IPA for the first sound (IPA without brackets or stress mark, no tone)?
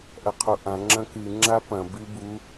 ʔ